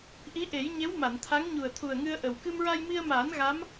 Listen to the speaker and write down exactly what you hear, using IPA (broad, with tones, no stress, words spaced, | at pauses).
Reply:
ʔi˧˥ʔe˨˩˦jɲe˧˥w ma˨˩˨nt̪ʰa˧˥ŋ ɲu˨˩ə̯t̪ʰu˨˩ə̯ŋɨ˧ə̯ ʔə˨˩w kɨ˧mɹa˧jmi˧ə̯maː˨˩˦n ɣa˧˥m